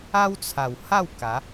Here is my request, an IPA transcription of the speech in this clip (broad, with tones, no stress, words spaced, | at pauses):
a˦wt͡sʰa˨˩wha˥˧w ka˨˦